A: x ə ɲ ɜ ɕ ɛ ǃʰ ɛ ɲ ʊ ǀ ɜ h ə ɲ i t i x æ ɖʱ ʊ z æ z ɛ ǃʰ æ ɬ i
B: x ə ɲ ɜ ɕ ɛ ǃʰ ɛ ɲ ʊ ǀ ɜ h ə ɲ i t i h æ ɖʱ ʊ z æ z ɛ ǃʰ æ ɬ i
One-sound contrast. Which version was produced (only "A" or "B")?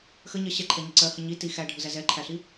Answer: A